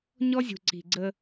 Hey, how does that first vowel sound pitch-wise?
high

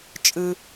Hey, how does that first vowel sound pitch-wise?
low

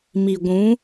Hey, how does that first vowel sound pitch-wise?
low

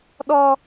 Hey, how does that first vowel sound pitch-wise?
high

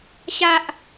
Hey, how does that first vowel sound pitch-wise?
high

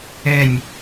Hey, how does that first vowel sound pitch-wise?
falling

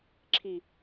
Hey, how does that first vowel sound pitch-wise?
low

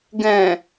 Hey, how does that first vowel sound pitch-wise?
low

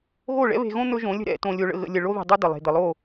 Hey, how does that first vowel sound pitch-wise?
falling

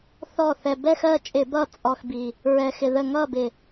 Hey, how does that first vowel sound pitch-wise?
falling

